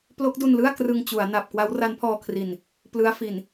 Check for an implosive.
absent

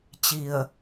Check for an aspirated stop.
absent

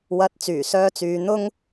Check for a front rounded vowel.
present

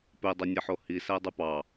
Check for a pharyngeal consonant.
present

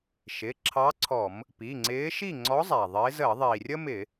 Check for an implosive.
absent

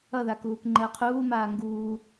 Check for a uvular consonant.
present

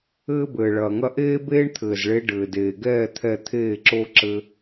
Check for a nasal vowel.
absent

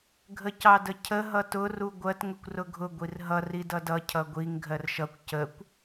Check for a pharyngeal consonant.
absent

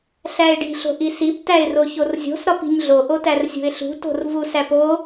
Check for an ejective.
absent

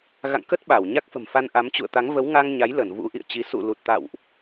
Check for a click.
absent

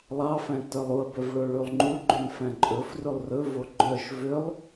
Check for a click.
present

